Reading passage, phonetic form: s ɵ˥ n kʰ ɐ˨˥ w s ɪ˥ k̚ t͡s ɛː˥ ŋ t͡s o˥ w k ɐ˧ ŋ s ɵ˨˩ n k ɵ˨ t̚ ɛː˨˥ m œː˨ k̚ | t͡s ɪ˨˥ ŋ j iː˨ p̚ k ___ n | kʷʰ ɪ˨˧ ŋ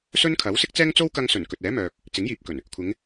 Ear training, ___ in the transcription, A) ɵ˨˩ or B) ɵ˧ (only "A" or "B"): A